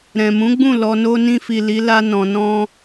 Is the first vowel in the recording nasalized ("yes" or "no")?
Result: yes